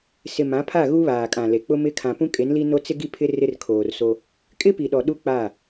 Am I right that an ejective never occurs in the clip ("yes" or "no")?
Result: no